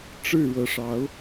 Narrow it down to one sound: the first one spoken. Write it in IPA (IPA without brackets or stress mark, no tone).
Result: ʈ͡ʂ